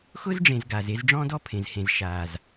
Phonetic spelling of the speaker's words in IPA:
x ʊ˦ z ɖ͡ʐ ẽ˨ z ɡ aː˨ z e˦ z ɖ͡ʐ ɔ̃˦ d ɔ˦ pʰ ẽ˨ z h ẽ˨ z ʃ aː˨ z

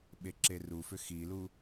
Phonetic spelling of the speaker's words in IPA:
ɓ e ǁ e r u f ʏ x i l u

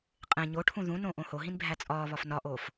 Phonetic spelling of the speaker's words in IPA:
qʼ ẽ ɲ o ʈʰ ũ ð ũ n õ ʔ õ h o ɦ ĩ n bʱ æ t͡sʼ ɒː β ɒ f n ɒ ʔ oː f

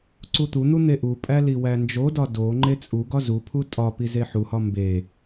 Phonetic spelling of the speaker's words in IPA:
ǀ u t̪ u n̪ u n̪ e ʔ u pʼ æ l i w æ n d͡ʒ o d ɒ d o ŋ͡ǃ e t͡sʼ u ɡ ɒ z u pʰ u tʼ ɒ p i z e ħ u h ɒ m b e

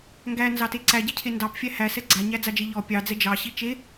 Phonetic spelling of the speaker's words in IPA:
ŋ ɡ æ n z ɑ t e ǀ æ ɟ e cʰ e n d ɑ p fʲ æ h æ s ɛ ɡ͡ǀ a ɲ æ d͡z a d͡ʒ e ʎ ɔ pʲ ɑ d͡z ɛ d͡ʒ ɑ ɕ i t͡ʃ e

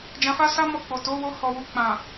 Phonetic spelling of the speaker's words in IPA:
d͡ʒ ã˧ f a˦ s a˦ m ɔ˦˨ k͡p o˨ t o˨˦ w o˧ h ɔ˨ w u˨ k͡p ã˨

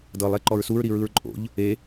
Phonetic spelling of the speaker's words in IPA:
d ɤ lˠ e ǃ ɔ ɹ s u ɹ ɾ i ɹ ɯ ɹ ǃʼ o̰ ʎ | e

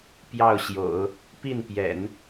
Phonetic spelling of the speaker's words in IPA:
p j ɑ˥˩ ʊ̯ ɕ j o̰˨˩˦ ʊ̯ | p i˥˩ n p j ɛ̰˨˩˦ n

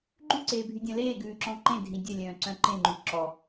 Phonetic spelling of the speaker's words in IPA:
ɡ͡ǃ ʉ ǀ eː bʱ y dʲ œ̃ l eː ɡ ʉː ǁ ɔ̃ ǃ ẽ dʱ ĩ dʲ œ lʲ œ̃ː ǀ œ̃ ǃ ẽ ŋ͡ǃ y ǁ ɔ

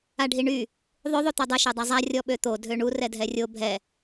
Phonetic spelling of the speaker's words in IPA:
a ɖʱ i ɳ y | ðˤ ø ðˤ o t̪ ɔ dˤ ɛ ʃ o dˤ a zˤ a rʲ ɔ ɓ ø t̪ o dʱ ø ɳ u r ɛ dʱ ɛ rʲ o bʱ ɛ

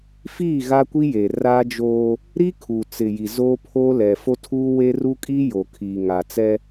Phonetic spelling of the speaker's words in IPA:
f iː˦˨ ɣ a˦ kʷ i˦ j e˨ r a˦ d͡ʒ oː˦ | ɾ i˦ kʰ u˨ t͡s ɪ˨ j i˨ z oː˦ pʰ oː˦ l ɛ˨ f o˦ tʰ uː˦ w e˦ r u˦ kʼ i˦ j o˨ kʰ iː˨ ŋ a˨ t͡s ɛ˦

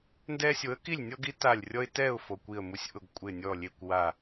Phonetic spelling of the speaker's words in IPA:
n d ɛ˦ sʲ o˨˥ ə̯ k i˥˨ lʲ nʲ ɔ˦ ɡ i˨˥ t a˧˩ lʲ rʲ ɔ˦ ɪ̯ t ɛ˥˨ ʊ̯ f o˩˧˩ kʷ i˧˩ ə̯ m u˧˩ sʲ ʔ ʊ˧˩ ɡ kʷʼ ɪ˧˩ nʲ ɔ˧˩ lʲ e˧˩ kʷ w a˧˩

